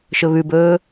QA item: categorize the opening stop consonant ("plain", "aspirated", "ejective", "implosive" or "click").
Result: plain